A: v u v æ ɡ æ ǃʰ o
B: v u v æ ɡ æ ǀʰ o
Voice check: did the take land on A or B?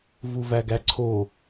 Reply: B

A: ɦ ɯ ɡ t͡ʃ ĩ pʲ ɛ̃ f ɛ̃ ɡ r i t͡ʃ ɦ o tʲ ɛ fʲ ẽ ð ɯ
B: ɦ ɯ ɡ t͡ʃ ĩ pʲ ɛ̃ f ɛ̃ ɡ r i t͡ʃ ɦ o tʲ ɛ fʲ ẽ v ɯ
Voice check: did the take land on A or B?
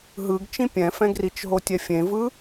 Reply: B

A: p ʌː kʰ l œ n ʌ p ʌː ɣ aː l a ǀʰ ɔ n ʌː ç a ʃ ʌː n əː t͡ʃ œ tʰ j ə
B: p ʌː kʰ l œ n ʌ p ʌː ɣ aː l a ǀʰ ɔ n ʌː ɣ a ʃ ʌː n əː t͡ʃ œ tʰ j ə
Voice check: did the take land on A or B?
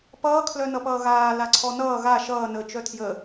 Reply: B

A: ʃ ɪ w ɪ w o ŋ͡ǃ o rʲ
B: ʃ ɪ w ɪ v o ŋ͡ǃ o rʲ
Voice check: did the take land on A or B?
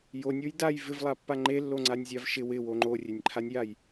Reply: A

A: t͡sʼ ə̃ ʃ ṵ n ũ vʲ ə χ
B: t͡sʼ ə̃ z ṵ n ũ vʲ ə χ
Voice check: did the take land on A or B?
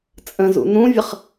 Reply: B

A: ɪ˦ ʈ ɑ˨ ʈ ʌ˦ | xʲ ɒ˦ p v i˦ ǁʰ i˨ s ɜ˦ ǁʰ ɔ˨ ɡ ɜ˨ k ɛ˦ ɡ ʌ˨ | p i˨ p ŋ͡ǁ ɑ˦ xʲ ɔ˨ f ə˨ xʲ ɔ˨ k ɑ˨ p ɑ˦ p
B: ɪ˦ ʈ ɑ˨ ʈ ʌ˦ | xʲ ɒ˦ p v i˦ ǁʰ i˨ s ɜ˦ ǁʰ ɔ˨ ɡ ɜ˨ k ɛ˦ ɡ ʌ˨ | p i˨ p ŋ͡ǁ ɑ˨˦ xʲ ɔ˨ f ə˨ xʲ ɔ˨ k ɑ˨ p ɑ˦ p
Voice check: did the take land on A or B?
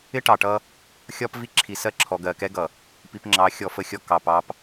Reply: B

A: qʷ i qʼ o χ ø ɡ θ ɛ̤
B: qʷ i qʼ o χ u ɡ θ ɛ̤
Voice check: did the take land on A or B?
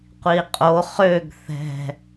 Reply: A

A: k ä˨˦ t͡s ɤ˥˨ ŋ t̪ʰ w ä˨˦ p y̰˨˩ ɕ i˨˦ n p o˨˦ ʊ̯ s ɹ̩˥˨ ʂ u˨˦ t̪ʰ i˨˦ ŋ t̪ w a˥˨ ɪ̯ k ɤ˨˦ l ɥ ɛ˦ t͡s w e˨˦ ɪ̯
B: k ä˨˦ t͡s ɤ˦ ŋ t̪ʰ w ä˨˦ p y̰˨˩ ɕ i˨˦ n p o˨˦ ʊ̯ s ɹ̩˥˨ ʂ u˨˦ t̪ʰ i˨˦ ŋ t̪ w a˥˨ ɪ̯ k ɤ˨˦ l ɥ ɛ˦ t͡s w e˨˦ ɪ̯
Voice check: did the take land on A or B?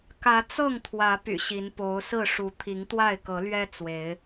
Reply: A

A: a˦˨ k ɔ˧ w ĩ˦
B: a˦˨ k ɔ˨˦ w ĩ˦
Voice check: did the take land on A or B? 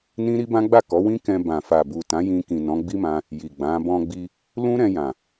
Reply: B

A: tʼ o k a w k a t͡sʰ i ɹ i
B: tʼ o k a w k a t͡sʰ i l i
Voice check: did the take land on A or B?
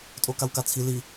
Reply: B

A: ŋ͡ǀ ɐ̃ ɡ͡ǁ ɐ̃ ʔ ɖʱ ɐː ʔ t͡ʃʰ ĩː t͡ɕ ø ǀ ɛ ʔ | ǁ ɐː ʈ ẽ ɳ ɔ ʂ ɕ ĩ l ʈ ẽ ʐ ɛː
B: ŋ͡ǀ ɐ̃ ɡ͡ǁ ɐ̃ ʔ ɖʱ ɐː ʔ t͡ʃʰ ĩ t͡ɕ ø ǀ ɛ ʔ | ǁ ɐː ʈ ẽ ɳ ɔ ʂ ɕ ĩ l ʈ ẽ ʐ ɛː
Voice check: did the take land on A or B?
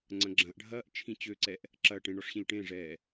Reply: B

